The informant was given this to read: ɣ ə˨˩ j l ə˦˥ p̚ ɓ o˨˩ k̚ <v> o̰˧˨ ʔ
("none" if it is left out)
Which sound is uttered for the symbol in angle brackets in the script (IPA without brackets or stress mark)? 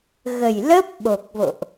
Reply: v